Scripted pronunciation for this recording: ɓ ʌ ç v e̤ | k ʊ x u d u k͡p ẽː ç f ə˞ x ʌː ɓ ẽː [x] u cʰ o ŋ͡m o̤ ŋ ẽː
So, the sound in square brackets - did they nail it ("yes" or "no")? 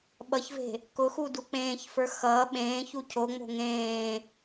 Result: no